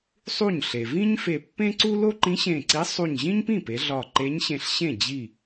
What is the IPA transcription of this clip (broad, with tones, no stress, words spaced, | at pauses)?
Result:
sˤu˥˩ɲɬe˩ vĩ˥ɲfe˧˩ pːẽ˥ǀu˥ lo˥ǃĩ˧˥ɕẽ˧˩ǀi˧˥ sˤu˧˩ɲʑĩ˥ɲpĩ˥˩pe˩˧ ɮɒ˧˩ ǃe˧˥ɲɕẽ˧˩ɬɕẽ˥˩ d͡ʑi˥˩